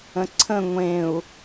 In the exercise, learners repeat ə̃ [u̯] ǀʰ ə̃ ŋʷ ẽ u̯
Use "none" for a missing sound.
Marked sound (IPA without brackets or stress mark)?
none